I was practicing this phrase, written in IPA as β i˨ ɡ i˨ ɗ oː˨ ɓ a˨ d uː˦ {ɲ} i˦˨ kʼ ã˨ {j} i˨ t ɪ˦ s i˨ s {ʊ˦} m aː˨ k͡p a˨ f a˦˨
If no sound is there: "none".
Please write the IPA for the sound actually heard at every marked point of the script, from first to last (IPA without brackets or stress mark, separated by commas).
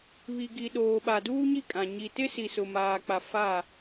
ɲ, ɲ, ʊ˨